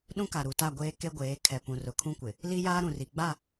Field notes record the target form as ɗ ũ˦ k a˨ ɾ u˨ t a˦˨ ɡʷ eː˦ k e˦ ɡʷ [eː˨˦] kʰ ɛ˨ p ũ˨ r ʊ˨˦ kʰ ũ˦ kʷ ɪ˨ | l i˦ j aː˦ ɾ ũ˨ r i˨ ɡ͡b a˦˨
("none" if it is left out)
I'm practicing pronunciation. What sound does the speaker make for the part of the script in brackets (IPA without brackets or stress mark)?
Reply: eː˨˦